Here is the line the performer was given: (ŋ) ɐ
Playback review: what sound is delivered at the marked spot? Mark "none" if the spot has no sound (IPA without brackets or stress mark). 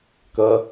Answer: k